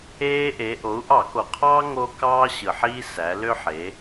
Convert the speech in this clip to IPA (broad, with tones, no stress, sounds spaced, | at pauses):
eː˦ ʔ e˩˧ ʔ o˩˧ u̯ ʔ ɑ˧˩˧ k o˩ qʰ ɑː˦ ŋ o˦ k ɑː˦ ɕ ɯ˩ ħ iː˦ s æ˩˧ l ø˦ ħ e˩˧